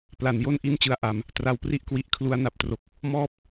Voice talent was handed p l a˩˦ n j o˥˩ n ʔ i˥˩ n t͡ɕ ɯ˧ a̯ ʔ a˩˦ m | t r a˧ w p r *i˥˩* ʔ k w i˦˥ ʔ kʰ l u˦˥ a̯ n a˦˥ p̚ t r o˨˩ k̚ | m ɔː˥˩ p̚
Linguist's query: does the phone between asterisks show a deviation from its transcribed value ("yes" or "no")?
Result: no